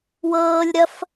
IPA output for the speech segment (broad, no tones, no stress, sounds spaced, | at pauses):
w ɤː lʲ ɾ ɐ f